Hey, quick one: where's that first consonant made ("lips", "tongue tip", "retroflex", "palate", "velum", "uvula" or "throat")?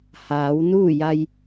throat